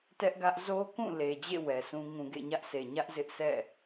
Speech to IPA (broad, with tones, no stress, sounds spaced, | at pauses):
t ɛ˦ ʔ ɡ ä˦ ʔ z o˦ k ũ˦˨ l e˨ d͡ʑ ḛ˦˨ w ɛ˨ s ũ˦ ŋ ũ˨ ɡ ḛ˦˨ ɲ ä˦ ʔ sʰ e˨ ɲ ä˦ ʔ z ɪ˦ ʔ sʰ ɛ̰˦˨